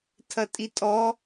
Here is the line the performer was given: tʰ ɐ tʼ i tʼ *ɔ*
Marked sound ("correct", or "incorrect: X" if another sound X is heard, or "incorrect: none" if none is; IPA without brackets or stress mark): correct